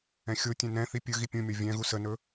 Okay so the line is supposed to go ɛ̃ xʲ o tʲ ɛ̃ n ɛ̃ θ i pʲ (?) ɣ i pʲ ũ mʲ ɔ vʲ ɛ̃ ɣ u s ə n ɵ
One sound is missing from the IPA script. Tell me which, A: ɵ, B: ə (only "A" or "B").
A